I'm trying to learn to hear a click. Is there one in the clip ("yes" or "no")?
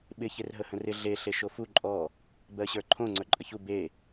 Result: yes